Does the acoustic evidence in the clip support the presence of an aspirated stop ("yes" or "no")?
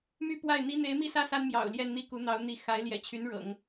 yes